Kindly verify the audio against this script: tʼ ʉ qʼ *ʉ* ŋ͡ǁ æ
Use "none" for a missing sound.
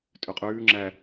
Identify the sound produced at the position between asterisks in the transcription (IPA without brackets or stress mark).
ʉː